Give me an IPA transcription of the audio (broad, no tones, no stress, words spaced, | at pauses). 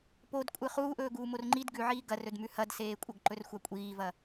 podkʷʼɨ χuːʔɵːɡuːmor ŋ͡ǃid ɡʉʕiː ɡɐrɵdmʉ hɐdseːkʷʼɐɡ ǃɵrxʷakʷʼiːvɐ